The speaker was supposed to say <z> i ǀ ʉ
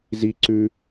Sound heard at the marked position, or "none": z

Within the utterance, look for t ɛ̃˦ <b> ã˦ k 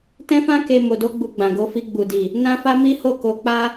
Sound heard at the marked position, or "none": f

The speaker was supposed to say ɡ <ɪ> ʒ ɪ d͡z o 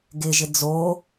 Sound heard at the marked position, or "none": ɪ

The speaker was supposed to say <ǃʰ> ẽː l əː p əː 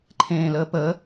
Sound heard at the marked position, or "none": ǃʰ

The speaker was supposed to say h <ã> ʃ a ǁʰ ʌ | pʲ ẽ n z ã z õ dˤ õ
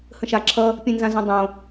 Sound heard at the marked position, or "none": ə̃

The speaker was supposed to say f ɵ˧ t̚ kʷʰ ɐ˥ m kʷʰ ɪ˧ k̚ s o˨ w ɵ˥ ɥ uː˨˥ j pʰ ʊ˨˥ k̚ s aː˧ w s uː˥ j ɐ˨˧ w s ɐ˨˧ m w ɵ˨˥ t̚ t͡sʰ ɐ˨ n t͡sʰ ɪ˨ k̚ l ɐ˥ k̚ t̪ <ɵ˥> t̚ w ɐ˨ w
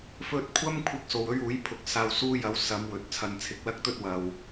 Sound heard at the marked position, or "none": ɵ˥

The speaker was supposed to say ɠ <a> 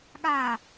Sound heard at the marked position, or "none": a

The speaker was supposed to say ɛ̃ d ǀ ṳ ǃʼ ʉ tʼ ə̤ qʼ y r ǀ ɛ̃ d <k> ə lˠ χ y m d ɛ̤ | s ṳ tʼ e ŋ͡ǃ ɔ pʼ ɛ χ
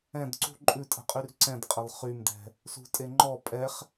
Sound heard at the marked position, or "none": qʼ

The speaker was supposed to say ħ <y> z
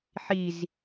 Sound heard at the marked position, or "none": i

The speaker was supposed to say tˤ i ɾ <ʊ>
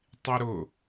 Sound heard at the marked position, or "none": ʊ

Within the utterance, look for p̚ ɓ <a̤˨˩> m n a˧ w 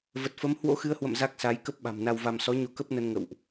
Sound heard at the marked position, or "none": a̤˨˩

